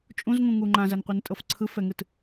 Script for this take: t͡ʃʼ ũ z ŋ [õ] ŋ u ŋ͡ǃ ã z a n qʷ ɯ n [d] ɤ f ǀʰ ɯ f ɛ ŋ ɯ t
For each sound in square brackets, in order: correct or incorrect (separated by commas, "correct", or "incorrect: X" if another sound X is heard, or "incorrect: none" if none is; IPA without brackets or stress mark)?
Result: incorrect: ũ, incorrect: tʼ